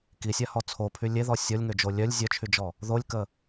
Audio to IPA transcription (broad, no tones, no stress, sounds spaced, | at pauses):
k i sʲ a h ɔ t͡sʰ o pʰ y lʲ e ð ɔ sʲ ɔ lʲ ŋ ø d͡ʒ o lʲ œ lʲ zʲ œ t͡ʃʰ y d͡ʒ ɔ | ð o lʲ k ə